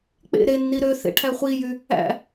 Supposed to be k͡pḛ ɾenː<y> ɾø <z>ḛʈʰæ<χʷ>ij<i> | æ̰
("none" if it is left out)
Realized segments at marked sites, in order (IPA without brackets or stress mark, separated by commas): i, θ, χʷ, y